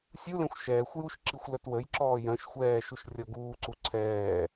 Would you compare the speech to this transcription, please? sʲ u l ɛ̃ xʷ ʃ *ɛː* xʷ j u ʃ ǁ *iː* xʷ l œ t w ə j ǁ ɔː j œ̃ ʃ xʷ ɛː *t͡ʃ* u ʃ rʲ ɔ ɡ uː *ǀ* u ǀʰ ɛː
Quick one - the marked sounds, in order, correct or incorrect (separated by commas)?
correct, incorrect, incorrect, correct